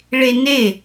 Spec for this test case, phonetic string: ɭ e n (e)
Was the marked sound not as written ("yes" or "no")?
no